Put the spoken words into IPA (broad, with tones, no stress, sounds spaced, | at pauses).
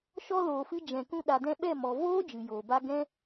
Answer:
ʃ ɔ˧ l oː˨ f ɨ˧ d͡ʒ ɛ̃˨ k ũ˧ ɗ a˨ d ɛ̃˧ ɓ ɛ˦˨ m ɔ˨ v oː˦ d͡ʒ ɨ˨ j oː˨ b a˦ ɡ ɛ̃˦